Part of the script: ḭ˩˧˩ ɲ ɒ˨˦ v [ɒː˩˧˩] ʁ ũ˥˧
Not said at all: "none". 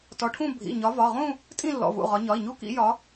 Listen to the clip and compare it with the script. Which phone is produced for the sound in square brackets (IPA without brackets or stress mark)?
ɒ˩˧˩